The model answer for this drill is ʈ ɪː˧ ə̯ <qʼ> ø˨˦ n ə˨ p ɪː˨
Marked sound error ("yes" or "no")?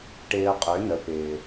no